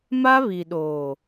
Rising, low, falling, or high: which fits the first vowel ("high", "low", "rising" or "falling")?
high